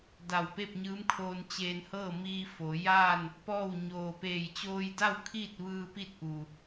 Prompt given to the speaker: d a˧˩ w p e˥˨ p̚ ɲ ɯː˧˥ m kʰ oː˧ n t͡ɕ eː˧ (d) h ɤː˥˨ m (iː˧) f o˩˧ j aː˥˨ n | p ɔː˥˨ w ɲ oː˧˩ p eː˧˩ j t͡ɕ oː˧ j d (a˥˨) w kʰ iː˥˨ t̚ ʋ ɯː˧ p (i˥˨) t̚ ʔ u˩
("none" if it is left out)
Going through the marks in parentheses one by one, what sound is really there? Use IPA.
n, iː˧, a˥˨, i˥˨

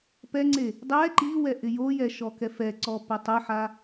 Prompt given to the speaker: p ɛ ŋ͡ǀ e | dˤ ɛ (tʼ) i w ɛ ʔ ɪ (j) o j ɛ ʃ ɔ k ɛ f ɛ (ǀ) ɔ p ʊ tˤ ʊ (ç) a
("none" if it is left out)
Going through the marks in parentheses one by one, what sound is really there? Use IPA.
ǃ, j, ǀ, ħ

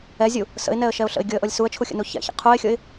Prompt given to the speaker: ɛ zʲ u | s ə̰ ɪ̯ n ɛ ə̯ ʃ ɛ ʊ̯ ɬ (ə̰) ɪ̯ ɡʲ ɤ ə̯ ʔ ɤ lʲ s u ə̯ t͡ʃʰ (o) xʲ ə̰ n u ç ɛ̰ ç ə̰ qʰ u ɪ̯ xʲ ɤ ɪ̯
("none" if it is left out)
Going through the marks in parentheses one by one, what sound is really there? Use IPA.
ə̰, u

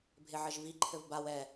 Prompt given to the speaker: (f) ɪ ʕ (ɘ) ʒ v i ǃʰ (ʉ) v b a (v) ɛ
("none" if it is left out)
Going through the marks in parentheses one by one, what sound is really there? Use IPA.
bʱ, ɘ, ɘ, w

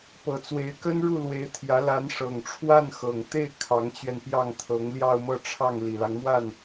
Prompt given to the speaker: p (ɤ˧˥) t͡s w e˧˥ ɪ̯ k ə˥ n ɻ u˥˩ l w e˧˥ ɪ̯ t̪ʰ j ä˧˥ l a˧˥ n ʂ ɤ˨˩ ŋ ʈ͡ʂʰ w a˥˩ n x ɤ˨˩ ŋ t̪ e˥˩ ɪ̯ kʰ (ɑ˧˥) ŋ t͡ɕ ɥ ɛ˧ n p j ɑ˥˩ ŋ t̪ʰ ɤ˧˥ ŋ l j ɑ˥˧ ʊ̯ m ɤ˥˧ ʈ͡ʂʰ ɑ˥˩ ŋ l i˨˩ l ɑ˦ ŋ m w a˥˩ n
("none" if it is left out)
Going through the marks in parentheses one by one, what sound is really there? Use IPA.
ɤ˧˥, ɑ˧˥

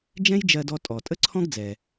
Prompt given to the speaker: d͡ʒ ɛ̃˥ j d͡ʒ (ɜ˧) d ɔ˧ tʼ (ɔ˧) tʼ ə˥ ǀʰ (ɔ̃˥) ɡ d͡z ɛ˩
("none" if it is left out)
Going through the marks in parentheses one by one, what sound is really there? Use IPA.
ɜ˧, ɔ˩, ɔ̃˥

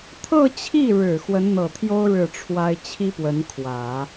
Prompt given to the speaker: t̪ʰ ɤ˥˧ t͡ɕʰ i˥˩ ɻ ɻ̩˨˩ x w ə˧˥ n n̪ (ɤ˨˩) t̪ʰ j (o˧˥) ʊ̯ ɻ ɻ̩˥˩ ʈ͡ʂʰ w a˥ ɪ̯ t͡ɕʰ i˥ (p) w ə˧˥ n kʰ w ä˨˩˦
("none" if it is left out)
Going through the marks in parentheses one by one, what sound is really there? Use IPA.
ɤ˨˩, o˥, p

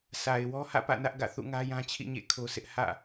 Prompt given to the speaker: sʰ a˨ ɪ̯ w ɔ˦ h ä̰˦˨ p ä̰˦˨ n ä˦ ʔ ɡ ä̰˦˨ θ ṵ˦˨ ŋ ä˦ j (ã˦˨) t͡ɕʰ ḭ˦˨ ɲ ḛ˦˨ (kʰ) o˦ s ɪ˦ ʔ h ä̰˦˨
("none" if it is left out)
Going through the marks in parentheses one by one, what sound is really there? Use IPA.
ã˦, kʰ

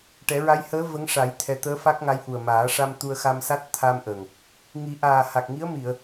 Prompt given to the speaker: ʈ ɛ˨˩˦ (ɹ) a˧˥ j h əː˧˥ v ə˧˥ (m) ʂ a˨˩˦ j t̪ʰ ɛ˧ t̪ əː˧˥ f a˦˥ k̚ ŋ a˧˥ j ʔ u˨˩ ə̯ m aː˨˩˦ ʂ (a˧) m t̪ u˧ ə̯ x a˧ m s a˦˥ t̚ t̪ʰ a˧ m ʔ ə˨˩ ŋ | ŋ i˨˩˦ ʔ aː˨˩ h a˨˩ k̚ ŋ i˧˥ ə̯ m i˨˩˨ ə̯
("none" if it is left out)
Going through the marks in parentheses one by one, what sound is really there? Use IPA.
ɹ, ŋ, a˧

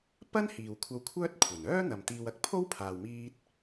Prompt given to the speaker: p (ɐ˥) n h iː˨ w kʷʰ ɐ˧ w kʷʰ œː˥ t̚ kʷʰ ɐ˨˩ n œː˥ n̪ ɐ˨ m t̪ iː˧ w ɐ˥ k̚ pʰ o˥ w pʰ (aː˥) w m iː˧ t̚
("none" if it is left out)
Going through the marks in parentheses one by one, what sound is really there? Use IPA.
ɐ˥, aː˨

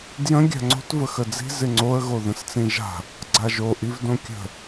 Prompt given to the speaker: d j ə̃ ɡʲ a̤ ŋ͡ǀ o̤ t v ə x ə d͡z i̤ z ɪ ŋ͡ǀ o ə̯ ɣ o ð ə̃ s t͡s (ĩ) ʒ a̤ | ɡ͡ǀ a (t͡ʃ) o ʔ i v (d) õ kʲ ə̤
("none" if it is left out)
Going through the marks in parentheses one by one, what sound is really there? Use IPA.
ĩ, ʒ, d

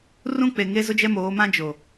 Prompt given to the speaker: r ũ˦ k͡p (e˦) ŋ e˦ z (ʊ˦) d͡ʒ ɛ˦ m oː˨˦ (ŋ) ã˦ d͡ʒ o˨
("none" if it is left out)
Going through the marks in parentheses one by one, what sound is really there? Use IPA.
e˨, ʊ˦, m

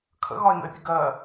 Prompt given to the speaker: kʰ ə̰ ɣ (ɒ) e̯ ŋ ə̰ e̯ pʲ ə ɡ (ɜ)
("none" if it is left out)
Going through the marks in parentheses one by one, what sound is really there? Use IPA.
ɒ, ɜ

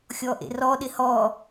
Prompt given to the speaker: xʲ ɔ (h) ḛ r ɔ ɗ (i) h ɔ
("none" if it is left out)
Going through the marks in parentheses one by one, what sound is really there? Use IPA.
ʔ, ɪ

